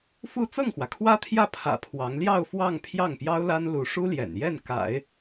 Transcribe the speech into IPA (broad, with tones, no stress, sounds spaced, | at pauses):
f u˥˧ t͡s ɤ˥˩ ŋ x w ä˩ kʰ w ä˥ t̪ʰ j ä˥˩ pʰ ä̰˨˩ pʰ w ɑ˧˥ ŋ l j ɑ˥˧ ʊ̯ f w ɑ˥˧ ŋ pʰ j ɑ˥˩ ŋ p j ɑ˥ ʊ̯ l a˥ n l u˧˥ ʂ u˥ l j ɛ̰˨˩ n j ɛ˥˩ n k a̰˨˩˦ ɪ̯